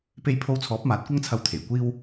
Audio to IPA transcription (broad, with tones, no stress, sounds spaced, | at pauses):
p e˧ j pʰ o˧ w t͡sʰ ɔː˨˥ p̚ m aː˨˥ t̚ kʷ ɐ˥ ŋ t͡sʰ ɐ˧ w t̪ʰ e˨˩ j kʷ iː˥ w